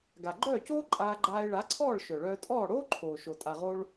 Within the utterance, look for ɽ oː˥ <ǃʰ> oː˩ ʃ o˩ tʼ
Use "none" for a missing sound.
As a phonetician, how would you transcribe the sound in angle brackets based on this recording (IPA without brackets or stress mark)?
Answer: ǃʰ